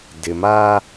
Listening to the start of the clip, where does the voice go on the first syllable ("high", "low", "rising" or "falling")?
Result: low